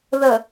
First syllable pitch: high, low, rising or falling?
low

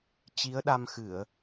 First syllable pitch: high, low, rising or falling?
rising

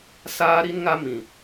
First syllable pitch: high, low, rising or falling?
high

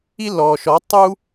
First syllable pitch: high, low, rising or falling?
high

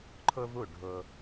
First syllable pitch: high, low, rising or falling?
high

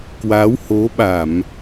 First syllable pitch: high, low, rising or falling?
rising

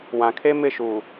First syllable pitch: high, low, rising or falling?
low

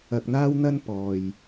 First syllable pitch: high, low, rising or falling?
low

